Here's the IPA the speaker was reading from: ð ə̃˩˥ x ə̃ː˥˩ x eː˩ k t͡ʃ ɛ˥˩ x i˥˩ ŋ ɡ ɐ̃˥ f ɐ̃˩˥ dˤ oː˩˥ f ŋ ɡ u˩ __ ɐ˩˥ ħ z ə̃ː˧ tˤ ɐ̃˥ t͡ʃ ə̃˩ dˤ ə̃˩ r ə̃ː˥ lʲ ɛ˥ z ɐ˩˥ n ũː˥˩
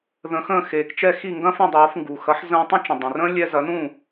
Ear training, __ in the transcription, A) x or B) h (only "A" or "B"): A